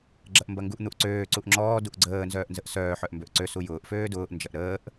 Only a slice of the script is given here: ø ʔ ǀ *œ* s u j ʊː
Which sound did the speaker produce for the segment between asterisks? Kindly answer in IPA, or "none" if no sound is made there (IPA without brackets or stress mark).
ø